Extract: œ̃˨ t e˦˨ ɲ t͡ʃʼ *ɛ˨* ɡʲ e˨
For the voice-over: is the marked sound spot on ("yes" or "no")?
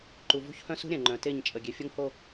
no